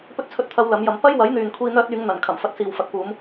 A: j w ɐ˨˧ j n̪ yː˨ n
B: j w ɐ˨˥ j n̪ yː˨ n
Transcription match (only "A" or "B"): B